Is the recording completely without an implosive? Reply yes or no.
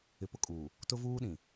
no